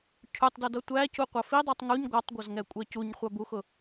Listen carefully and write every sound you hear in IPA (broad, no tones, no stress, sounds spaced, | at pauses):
cʰ u tˤ d ʊ d ʌ tʷ æ c u qʷ ɑ f i dˤ u tˤ ŋ u ɲ ɡʷ ɑ tˤ ɡʷ ʌ z ŋ ɛ kʷʼ ɛ c u ɲ χʷ ɑ b u x ʊ